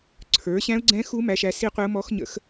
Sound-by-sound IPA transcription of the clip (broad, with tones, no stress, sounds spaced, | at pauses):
ǀʰ ə˞˨˦ ɕ æ̃˦˥ ʊ̯ ɡ͡ǀ ɛ̃˦˥ x u˦˥ m æ˦˥ ʃ æ˦˥ s i˦˥ qʷ ɪ˦˥ ʊ̯ m ɔ˦˥ x ɲ ə̰˦˥ x